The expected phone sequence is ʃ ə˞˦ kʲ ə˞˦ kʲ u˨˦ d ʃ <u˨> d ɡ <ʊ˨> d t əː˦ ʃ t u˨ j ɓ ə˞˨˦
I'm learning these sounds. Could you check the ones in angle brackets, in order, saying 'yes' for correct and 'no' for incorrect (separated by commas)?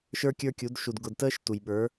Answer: yes, yes